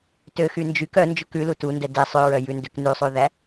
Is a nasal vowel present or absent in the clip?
absent